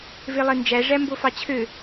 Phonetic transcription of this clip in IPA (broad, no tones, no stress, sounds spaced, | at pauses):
v e lˠ e n d͡ʒ æ ʐ æ m b o f ɑ t͡ɕʰ ø